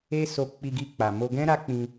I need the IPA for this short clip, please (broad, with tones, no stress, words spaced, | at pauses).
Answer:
e˦ so˧k͡pi˧ɡi˧ k͡pa˨mo˧ɡɛ̃˦ ɾa˦k͡pĩ˧